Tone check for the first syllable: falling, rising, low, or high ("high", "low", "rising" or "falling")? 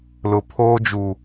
low